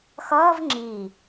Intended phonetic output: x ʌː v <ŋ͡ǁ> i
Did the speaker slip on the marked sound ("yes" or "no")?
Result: no